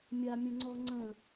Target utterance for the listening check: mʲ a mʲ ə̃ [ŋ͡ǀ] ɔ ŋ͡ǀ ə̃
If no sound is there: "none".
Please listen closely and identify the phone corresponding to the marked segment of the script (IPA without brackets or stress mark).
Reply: ŋ͡ǀ